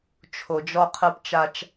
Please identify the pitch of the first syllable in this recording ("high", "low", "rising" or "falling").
low